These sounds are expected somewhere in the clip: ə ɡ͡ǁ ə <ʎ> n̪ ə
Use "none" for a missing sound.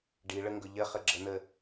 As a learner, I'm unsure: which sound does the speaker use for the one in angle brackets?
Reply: none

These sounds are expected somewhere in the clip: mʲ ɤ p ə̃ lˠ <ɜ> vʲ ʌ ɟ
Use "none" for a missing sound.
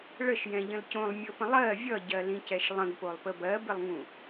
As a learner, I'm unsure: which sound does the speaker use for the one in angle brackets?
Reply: ɜ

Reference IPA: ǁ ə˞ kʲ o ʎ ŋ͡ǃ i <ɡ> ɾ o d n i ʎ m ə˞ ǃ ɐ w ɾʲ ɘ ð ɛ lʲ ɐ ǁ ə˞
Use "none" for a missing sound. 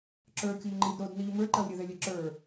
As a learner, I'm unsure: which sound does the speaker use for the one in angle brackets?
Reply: d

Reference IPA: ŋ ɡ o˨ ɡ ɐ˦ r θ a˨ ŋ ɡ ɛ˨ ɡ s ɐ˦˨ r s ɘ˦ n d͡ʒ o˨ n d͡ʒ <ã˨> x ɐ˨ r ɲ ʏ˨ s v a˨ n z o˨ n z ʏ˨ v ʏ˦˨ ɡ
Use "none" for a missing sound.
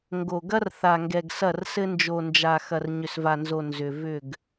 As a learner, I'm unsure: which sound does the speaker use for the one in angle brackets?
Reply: a˨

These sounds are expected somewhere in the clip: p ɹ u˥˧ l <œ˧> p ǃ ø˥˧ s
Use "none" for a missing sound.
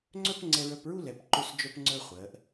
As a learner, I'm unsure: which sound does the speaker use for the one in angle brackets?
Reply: ɛ˧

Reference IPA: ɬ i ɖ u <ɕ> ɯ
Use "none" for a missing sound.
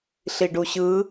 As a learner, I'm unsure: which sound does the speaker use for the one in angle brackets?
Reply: ɕ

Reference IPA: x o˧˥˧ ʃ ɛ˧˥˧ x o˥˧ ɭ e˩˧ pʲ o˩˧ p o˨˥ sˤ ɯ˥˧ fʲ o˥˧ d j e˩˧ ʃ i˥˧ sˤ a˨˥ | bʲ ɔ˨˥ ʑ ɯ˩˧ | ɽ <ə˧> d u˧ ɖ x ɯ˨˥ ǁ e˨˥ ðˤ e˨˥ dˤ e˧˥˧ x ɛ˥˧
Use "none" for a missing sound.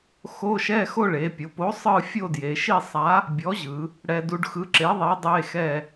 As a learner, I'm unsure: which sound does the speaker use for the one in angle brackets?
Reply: ɛ˧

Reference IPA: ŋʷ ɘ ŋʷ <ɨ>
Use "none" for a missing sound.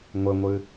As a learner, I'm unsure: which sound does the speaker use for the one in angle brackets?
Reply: ɨ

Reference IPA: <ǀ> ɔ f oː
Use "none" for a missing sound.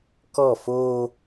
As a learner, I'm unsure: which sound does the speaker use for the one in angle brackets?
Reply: k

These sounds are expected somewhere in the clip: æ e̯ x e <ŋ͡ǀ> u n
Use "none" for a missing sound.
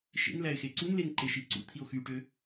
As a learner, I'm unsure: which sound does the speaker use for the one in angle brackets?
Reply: ǀ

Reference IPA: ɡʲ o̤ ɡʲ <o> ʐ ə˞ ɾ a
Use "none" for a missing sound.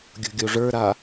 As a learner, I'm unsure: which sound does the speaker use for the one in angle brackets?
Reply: o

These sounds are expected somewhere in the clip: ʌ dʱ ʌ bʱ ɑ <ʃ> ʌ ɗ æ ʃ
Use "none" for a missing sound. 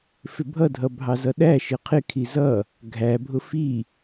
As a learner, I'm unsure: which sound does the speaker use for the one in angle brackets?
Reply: z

